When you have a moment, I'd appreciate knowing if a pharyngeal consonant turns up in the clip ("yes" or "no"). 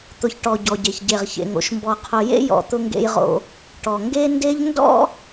no